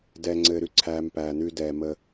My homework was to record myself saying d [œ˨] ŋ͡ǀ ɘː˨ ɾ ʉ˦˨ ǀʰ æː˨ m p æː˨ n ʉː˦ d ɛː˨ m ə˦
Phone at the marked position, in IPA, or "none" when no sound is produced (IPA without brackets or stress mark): ɛ˨